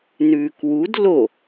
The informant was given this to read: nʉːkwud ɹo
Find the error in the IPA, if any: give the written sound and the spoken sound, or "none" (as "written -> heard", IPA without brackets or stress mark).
ɹ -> l